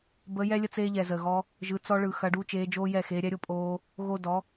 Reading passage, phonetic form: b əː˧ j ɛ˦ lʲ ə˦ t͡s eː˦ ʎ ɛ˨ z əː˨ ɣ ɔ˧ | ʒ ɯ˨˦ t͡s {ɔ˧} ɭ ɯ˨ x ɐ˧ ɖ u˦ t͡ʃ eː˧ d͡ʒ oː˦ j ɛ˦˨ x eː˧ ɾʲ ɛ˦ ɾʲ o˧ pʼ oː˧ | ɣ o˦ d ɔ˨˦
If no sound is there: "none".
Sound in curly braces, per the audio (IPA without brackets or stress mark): ɔ˧